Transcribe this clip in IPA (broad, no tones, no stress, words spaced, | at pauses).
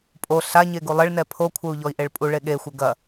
pʼo ɬaɲe ɡulˠɘɭnɛ pʰokʷʰɘu̯ ʎɔi̯ʔeɭpʼuɭe ɠexʷɘ ɡɐ